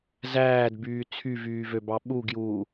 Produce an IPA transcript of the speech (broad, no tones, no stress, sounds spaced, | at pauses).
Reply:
z æː d b yː t͡sʰ y v yː v ø b ɑ ɓ u ɡ j uː